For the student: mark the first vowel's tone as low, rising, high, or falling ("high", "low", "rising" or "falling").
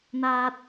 high